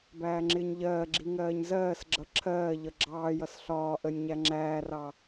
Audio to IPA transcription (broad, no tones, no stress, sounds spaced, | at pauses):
b æː ŋ͡ǁ ɪː ɲ ʎ ɜː ɡ͡ǁ i ŋ ɜː ɲ z ɜː s ɡ͡ǁ ʌ ǁʰ ɜː ʎ ʌ ɡ͡ǁ ɑː j ʌ s ɬ ɒː ʔ ə nʲ ɲ æ ŋ͡ǁ æː r ɑ